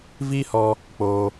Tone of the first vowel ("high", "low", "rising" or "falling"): high